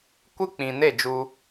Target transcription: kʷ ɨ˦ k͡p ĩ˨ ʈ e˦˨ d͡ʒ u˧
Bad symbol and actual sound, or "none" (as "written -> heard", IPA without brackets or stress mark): ʈ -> n